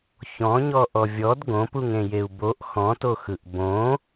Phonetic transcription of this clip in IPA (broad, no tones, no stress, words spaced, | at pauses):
çɔ̃ɲɔ ʔɔvʲɔd ɡõpuŋẽ jeu̯boʔ xɔ̃toxɯʔ bõ